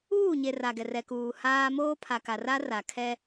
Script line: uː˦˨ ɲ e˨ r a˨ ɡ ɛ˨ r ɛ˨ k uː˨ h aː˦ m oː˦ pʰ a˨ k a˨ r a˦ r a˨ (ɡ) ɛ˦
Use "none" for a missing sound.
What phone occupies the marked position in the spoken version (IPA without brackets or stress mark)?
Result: kʰ